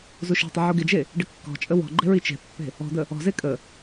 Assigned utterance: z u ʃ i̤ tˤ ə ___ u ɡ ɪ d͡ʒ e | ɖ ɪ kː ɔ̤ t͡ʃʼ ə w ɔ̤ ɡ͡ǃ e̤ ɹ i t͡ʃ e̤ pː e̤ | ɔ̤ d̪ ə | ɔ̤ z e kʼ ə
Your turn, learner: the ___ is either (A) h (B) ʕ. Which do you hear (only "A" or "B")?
B